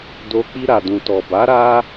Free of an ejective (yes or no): yes